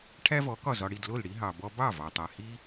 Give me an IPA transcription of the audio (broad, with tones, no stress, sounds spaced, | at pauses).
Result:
ʈʰ æ˥ v ɔ˩˥ k ɒ˥˩ z ɒ˧ ɽ i˥˩ d l o˥˩ l ɽ i˥ ɦ ɑ˩ b ɔ˧ b ɑ˥˩ v ɑ˩ tˤ a˩ h i˥